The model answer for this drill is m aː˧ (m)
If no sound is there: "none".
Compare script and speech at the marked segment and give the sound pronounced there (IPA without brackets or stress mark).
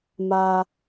none